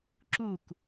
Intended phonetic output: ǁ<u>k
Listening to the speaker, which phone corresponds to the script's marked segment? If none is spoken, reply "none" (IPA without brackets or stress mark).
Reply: u